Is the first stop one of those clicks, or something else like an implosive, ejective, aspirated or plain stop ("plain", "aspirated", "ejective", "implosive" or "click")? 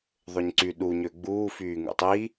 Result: click